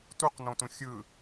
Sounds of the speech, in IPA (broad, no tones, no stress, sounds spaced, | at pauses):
t u q n õ t ũ xʲ ɯ